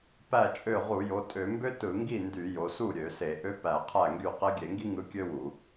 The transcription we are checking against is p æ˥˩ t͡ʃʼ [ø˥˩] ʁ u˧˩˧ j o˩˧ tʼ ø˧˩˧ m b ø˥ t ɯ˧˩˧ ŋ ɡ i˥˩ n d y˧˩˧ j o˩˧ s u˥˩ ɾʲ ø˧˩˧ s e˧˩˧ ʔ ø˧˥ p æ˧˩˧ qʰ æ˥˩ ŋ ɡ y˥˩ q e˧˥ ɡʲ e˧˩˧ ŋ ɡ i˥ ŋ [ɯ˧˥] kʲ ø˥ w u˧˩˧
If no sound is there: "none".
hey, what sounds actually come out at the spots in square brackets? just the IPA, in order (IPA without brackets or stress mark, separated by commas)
ø˥˩, ɯ˧˥